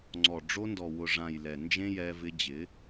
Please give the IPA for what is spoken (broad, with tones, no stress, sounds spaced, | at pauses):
ŋ͡ǀ ɔ˨ ɖ͡ʐ o˧ n d ɔ˨ w ʊ˨ ʐ ã˨ j l ɛ˨ n d͡ʒ ẽ˦ j ɛ˧ v ɪ˧ d͡ʑ ɪ˨˦